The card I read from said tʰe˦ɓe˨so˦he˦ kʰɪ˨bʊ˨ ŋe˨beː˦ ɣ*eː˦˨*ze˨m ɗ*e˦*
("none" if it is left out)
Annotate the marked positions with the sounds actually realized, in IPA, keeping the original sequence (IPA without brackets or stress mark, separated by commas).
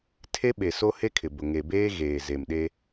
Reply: eː˨, e˦